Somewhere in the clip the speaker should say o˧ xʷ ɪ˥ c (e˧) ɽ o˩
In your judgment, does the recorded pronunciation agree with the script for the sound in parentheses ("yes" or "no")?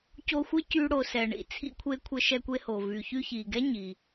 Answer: no